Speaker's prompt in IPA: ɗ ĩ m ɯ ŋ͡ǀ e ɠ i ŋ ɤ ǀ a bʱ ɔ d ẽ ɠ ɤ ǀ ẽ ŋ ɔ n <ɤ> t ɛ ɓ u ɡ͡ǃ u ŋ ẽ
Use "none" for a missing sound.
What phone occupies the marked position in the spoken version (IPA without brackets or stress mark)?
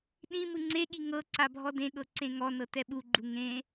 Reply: ɤ